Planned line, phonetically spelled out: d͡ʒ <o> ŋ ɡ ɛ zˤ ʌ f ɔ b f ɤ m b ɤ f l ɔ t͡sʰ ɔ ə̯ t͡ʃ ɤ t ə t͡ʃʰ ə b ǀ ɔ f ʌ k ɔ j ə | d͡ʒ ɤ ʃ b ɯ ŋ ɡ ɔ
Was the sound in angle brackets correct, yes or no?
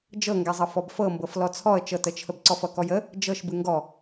no